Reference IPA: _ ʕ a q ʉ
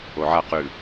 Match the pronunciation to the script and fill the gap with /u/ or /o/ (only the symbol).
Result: o